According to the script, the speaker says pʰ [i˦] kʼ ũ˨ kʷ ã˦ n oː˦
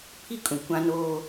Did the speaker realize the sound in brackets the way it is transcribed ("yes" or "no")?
yes